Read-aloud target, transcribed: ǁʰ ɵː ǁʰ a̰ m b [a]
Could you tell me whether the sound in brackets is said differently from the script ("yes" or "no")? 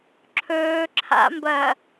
yes